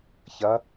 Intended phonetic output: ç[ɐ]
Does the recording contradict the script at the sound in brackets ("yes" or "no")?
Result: no